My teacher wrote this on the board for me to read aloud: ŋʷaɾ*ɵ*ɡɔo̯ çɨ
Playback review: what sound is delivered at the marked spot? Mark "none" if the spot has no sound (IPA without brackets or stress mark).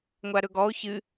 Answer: ɵ